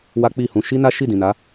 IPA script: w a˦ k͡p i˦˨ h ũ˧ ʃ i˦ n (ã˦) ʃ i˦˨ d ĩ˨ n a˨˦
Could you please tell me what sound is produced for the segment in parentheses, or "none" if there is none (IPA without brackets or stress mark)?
a˦